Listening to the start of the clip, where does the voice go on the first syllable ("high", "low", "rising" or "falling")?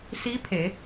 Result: rising